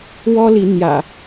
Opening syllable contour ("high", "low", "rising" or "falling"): high